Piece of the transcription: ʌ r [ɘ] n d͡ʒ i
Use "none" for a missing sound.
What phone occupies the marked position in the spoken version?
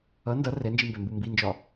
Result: ɛ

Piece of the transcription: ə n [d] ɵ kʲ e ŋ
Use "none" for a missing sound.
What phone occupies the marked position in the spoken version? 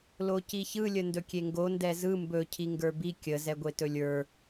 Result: d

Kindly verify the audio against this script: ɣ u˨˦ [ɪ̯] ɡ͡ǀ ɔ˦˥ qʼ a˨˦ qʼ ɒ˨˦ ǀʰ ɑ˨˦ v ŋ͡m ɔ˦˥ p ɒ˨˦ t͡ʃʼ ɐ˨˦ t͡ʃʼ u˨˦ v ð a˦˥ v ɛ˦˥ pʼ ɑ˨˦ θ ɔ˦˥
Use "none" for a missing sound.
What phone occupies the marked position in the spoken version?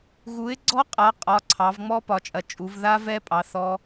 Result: ɪ̯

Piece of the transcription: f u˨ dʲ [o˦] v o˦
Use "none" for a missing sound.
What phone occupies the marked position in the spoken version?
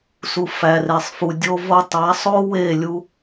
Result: o˦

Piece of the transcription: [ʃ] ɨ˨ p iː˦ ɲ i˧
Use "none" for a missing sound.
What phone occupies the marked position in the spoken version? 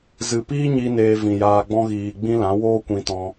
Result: z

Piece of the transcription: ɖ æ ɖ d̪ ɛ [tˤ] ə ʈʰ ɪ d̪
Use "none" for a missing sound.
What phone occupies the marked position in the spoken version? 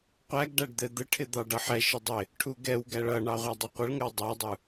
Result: d̪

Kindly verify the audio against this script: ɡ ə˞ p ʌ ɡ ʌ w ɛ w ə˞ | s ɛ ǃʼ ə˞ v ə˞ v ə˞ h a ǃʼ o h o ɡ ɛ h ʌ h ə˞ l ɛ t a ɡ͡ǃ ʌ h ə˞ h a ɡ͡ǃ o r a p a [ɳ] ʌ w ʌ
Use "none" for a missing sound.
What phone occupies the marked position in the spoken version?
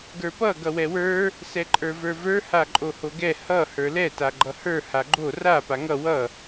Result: ŋ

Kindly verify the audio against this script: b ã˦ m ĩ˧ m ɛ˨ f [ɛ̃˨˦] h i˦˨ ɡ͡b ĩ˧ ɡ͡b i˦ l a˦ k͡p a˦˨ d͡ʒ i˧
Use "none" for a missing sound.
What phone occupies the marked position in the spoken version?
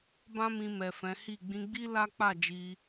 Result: ɛ̃˨˦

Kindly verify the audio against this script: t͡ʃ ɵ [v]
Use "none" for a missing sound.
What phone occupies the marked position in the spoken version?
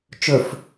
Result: f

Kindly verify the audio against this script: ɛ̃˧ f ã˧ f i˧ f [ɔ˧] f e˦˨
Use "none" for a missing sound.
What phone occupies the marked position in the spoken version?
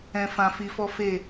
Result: ɔ˦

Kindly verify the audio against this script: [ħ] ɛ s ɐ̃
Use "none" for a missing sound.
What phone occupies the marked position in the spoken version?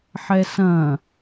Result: ħ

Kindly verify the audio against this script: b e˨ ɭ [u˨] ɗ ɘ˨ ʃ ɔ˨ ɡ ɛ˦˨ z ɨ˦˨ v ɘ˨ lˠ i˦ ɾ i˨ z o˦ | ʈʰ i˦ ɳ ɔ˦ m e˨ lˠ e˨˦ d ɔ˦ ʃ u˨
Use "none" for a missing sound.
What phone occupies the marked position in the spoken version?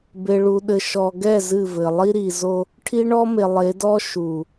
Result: u˨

